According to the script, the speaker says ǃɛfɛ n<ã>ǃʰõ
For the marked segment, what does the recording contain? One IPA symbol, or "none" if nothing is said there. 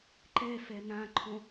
ã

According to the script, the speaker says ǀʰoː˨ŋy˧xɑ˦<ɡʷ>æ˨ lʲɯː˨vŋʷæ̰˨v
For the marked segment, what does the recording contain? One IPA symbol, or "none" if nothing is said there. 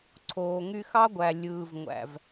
ɡʷ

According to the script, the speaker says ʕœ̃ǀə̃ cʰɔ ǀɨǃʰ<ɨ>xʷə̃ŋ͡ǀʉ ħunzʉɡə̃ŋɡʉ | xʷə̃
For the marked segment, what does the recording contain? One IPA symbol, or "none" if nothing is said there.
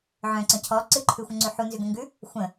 ʉ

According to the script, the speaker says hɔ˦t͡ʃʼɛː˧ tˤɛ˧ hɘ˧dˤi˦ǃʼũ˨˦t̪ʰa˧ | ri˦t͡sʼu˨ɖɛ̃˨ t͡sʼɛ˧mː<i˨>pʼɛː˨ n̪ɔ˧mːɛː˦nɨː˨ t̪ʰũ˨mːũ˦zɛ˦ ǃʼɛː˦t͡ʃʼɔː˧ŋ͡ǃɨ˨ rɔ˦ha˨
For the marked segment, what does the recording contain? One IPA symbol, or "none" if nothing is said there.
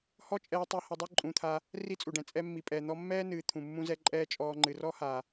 i˨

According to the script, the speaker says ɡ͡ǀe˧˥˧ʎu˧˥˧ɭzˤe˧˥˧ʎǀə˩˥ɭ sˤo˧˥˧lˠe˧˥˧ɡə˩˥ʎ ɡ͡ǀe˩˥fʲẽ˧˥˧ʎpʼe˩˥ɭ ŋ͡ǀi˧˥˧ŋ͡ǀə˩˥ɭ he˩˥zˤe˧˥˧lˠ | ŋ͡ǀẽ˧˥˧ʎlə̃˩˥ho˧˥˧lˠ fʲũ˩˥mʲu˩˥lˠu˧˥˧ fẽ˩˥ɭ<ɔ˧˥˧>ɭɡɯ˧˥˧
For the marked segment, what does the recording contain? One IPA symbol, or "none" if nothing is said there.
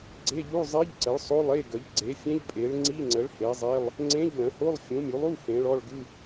ɔ˧˥˧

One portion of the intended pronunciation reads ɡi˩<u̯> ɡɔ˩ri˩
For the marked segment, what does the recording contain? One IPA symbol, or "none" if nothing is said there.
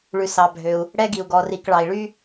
u̯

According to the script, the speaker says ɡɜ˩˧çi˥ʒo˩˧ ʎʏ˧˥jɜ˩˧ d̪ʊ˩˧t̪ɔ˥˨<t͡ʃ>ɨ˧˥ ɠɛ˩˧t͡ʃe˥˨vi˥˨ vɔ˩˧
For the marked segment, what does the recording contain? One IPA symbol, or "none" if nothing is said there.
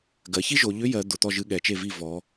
ʒ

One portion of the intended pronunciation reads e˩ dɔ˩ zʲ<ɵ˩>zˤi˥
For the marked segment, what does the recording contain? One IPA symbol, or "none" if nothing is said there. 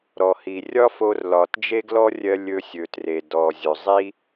ɵ˩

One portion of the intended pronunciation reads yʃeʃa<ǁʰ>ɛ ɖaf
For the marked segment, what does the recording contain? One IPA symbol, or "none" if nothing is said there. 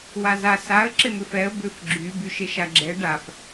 ɡ͡ǁ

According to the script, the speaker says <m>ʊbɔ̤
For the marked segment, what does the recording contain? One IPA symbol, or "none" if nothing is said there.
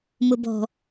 m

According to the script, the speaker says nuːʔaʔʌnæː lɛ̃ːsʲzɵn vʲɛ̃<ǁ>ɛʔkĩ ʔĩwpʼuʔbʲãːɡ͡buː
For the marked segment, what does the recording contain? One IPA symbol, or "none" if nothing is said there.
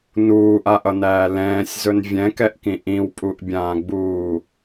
k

